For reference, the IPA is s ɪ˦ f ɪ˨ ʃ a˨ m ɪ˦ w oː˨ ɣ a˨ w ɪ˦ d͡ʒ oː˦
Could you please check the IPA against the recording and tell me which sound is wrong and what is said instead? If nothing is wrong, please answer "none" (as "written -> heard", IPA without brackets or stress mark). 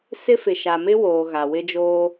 none